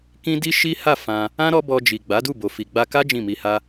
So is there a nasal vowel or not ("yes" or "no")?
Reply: yes